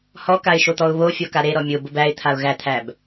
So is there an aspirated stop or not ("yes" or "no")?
yes